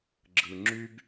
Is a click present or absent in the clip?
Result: present